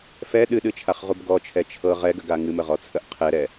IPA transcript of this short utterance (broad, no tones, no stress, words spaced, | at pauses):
fɛ ɗɨɗɨt͡ʃʰaχʁub ɡɔt͡ʃʰɛ t͡ʃʰɤ ʁɛɡəɡa ŋɨməʁɔt͡sʰəʔ qʰɛɾɛ